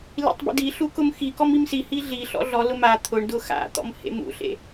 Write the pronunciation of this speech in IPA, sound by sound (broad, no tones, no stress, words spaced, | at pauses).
lḭtˤbḭdiɬu kʊmxikɔm imsihi ɮiɬɔ̰ ɮɔlʊ ma t̪ʰʊɳdʊ xa̰t̪ɔ̰m hḛmṵɬḛ